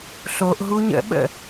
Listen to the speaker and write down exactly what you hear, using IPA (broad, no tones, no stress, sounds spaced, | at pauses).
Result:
ɬ o ʔ ɦ u ɲ ə̰ ɓ ə̰